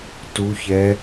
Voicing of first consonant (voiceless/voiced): voiceless